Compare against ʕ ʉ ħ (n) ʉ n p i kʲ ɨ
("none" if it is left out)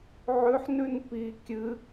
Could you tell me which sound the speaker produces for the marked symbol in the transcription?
n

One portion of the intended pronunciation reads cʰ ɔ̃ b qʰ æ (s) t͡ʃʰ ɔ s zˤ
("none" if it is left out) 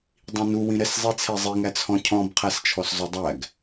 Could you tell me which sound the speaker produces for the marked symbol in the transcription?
s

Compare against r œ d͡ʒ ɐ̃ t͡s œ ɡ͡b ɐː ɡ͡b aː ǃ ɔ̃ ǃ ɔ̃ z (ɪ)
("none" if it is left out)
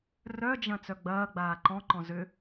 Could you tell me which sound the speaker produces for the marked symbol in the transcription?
ʏ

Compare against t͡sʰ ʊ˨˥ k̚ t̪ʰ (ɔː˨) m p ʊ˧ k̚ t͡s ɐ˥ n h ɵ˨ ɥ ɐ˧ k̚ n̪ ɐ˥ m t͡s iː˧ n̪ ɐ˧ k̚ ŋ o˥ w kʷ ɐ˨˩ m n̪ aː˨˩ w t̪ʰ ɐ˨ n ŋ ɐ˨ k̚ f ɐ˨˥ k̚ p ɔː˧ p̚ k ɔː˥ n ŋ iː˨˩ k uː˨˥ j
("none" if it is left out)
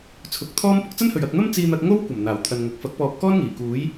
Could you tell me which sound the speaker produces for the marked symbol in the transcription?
ɔː˥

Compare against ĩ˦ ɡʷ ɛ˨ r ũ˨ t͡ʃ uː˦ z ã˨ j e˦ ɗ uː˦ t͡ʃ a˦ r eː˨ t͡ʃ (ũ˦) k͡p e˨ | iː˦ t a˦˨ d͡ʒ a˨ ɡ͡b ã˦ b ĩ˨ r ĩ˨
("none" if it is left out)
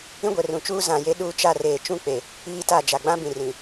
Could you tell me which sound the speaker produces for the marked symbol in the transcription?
ũ˦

